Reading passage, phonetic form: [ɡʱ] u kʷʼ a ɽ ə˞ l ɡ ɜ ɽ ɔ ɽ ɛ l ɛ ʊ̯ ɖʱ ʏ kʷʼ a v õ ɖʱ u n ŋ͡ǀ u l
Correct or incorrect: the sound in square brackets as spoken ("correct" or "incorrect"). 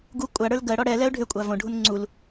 incorrect